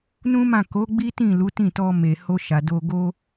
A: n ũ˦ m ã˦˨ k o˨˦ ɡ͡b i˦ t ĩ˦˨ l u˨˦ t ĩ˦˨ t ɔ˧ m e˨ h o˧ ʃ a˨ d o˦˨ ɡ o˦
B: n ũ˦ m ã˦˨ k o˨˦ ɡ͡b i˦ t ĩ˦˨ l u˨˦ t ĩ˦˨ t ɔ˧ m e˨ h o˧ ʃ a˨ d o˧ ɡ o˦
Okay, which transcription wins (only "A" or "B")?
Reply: B